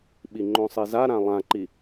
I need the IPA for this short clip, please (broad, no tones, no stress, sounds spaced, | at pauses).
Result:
ɓ i ŋ͡ǃ õ sˤ i z a ɾ ã lˠ ã ǃ i